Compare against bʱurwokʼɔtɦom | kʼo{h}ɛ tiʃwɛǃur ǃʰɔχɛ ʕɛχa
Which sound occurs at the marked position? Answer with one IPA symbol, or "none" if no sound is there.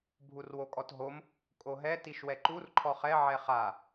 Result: ɦ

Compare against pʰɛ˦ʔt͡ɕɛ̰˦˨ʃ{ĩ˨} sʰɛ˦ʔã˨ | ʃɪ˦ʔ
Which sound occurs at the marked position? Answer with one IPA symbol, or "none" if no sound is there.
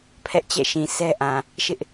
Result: ĩ˨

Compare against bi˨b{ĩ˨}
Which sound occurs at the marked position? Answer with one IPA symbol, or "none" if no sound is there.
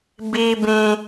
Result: ĩ˨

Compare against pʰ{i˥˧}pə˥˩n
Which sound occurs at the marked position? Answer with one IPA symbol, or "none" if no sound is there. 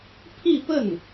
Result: i˥˧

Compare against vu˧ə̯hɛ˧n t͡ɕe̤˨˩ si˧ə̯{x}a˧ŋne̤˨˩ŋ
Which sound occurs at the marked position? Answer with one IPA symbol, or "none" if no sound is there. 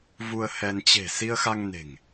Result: x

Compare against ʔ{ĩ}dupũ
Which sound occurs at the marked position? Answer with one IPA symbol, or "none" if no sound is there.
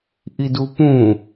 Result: i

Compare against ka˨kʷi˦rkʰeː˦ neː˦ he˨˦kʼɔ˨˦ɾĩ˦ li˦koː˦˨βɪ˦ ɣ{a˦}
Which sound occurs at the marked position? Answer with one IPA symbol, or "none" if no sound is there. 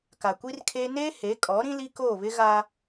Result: a˦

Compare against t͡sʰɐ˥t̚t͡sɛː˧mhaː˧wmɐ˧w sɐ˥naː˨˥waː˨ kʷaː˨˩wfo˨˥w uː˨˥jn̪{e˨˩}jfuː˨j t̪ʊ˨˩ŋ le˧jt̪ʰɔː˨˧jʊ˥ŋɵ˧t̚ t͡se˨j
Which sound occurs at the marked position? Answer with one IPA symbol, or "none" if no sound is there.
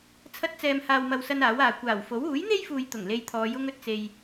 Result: e˥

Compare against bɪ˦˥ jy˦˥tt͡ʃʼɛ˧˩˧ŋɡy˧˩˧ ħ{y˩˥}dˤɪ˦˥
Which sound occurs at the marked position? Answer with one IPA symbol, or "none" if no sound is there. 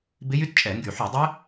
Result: y˧˩˧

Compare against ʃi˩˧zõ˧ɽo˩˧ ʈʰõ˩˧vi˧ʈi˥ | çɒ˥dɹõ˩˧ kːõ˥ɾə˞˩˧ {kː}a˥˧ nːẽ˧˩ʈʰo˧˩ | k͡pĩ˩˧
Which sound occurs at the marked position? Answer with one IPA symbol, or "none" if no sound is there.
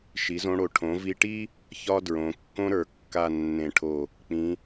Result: kː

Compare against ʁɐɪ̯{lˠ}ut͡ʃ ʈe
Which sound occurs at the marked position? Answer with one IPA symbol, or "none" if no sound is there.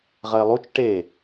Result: lˠ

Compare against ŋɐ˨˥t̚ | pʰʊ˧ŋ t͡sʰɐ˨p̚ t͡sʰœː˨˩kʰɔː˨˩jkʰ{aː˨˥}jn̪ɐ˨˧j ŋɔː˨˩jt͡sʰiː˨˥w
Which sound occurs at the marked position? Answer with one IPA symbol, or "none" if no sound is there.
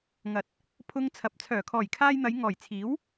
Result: aː˧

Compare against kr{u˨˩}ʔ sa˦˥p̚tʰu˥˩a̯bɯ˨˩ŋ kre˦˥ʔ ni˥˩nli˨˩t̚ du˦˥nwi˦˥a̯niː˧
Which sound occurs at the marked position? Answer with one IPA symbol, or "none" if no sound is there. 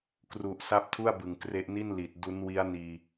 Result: u˨˩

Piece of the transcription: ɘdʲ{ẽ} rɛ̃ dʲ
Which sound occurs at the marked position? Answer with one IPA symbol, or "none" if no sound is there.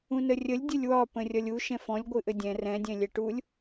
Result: ɛ̃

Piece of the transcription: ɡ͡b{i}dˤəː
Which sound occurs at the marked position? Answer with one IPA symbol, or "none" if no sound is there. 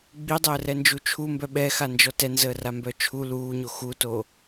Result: i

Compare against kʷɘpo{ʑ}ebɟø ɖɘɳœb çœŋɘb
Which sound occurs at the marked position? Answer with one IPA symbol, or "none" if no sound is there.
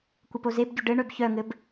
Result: z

